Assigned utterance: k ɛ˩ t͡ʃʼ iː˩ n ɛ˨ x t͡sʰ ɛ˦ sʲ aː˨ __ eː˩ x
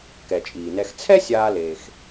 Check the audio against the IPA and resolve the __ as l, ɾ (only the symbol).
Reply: l